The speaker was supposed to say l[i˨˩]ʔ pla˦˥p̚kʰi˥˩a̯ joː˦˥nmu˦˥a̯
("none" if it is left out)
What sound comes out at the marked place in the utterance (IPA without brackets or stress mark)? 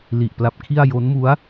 i˨˩